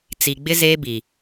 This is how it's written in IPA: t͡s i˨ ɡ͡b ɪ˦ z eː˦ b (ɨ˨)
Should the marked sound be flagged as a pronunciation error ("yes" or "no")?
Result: yes